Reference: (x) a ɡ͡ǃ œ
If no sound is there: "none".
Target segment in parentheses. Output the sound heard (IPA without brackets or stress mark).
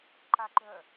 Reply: ǃ